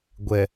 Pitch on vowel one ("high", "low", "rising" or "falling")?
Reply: low